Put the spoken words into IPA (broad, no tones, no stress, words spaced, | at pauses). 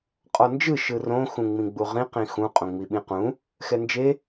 qʼɔnd͡ʒɯ ʃɯrõ xũŋ͡mĩɡ͡buʁĩ qĩxũ qʼõŋ͡miɓĩqũ | xɛnd͡ʒe